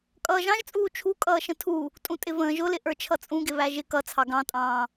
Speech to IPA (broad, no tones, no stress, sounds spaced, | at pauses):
kʼ ʌː ʒ ɑ̃ ʒ t͡sʼ uː t͡ʃʰ u kʼ ʌː ʃ ə̃ tʰ u | tʼ ũ tʼ ɪ v ə̃ː ʒ ʊ l ɪ ʔ ə˞ t͡ʃʰ ʌ t͡sʼ ũ ɡ ɪ β æ ʒ ɪ k ʌ t͡sʰ ɑ ɡ ɑ̃ tʼ ɑ̃ː